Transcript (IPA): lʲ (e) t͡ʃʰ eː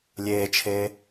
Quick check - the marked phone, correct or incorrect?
incorrect